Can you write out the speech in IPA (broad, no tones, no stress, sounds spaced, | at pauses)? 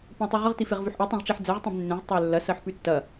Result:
p ə̃ w tˤ ʉ ʁ ə ʁ t i f e ʁ v ʉ ħ ʔ i tˤ ĩ ʁ ʈ͡ʂ i ħ d͡z ɜ ʁ tˤ ẽ b nː ẽ ʁ tˤ ə˞ lː ɐ s ɜ ħ p ʉ tː ɐ